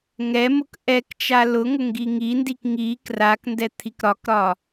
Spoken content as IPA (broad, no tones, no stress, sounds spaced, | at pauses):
ŋ ɛ m ʊ k ʔ ɛ k t͡ʃ a l ʊ ŋ ʊ ŋ ɡ i ŋ i n d i k ŋ i k r a k n d ɛ t̪ʰ i k ɾ ɒ k ɾ ɒ